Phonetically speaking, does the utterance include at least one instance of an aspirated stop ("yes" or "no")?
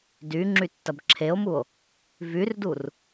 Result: yes